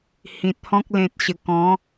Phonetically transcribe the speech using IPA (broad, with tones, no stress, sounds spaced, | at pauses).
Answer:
h ĩ˨ t̚ h ɔ̃˦ k̚ l ẽ˨ t̚ ɕ ə˨˩ k ɔ̃˨˦